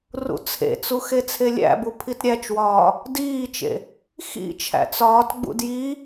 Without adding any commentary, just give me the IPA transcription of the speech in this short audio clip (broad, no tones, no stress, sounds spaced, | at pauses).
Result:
r ṵ t͡sʰ ḛ t͡s u x e t͡sʰ e lʲ æ̰ b u pʰ i t ɾʲ æ t͡ʃ w ɒː | d iː t͡ʃ ḛ | x ḭ t͡ʃʰ æ̰ t͡s ɒː t ɡ͡b ṵ d j i